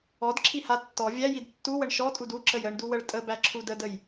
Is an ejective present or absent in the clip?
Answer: present